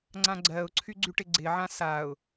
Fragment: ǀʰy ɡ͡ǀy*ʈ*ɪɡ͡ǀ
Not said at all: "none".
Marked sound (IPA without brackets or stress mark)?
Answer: ʈ